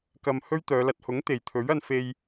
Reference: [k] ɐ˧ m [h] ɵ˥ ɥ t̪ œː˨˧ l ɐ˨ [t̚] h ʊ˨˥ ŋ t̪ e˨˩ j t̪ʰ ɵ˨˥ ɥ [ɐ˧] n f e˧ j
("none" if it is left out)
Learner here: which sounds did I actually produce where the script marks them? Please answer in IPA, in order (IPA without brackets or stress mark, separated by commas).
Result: k, h, t̚, ɐ˧